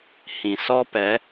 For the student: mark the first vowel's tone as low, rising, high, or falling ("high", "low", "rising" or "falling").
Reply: low